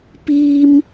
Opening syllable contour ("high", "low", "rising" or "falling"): high